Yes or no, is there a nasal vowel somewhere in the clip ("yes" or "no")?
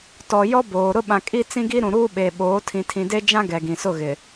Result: yes